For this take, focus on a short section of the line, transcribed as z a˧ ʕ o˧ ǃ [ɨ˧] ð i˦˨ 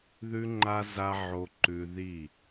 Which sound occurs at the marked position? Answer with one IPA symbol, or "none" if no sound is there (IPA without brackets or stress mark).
ʉ˧